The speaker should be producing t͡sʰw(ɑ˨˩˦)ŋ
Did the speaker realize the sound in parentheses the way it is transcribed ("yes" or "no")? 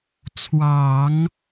yes